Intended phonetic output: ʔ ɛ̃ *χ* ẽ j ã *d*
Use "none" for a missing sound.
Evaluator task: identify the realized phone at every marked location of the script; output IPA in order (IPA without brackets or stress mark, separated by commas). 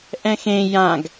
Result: x, ɡ